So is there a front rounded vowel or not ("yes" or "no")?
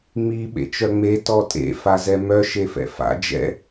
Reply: yes